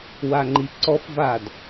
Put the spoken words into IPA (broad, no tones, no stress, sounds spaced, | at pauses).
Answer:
w a ŋ͡ǃ i ǀ ɔ f v a d